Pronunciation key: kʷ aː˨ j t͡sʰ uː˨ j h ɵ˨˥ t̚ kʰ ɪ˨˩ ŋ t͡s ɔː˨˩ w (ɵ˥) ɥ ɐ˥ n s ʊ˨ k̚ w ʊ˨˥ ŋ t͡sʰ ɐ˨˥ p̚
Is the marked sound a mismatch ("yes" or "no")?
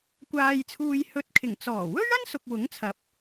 no